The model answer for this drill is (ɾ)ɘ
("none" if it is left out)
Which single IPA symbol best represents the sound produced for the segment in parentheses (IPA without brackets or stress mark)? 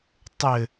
tˤ